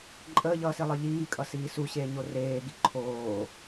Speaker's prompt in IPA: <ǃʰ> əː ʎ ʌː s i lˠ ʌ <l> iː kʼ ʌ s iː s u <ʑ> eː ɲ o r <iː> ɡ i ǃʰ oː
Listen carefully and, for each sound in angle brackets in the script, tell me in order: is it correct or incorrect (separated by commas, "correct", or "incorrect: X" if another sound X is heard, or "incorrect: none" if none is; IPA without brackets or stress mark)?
incorrect: ǃʼ, incorrect: ʎ, incorrect: ɕ, incorrect: eː